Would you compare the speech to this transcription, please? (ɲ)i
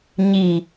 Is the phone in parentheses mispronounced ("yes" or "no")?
no